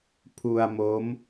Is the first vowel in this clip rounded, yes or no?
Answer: yes